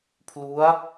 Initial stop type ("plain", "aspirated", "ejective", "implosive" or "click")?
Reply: aspirated